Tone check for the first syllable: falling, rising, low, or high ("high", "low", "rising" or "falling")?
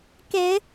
rising